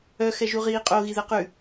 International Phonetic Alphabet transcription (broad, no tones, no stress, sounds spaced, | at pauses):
œ x ɛ ʒ u ʁ iː qʼ o ɣ i ð ɛ q ʉ